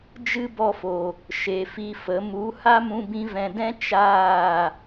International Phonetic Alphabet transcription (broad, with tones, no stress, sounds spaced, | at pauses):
d͡ʒ ɨ˦ b ɔ˧ f o˨ | ʃ e˨ f i˧ f ə˨˦ m u˨˦ h a˦ m ũ˧ b ĩ˧ v ɛ̃˨ d ɛ̃˦ t͡ʃ aː˦˨